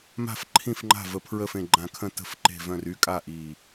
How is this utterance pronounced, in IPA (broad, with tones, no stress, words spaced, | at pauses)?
ma̤˥˩fǃʰĩ˥˩fŋ͡ǃa̤˥˩və˧˩ pʰɹə˥˩fẽ˧˩ɡ͡ǃã˧˩kʰə̃˥˩ tə̤˧˩f ǃe̤˥˩vœ̃˥˩r y˥˩kʼa˥˩ ʔi˧˩